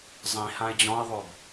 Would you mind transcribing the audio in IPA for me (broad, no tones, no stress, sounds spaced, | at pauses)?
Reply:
zˤ ĩ h ã ɪ̯ d͡ʑ ɔ̃ ɪ̯ ðˤ o b